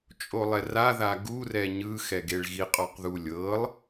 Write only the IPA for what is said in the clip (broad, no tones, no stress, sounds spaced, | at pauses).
t͡ʃʼ o lˠ ɛ r a ð a ɡ u r ɛ ɲ ɯ x ɛ ɡ e ɭ ɣ i qʼ ɔ q ð u lʲ ɤ lˠ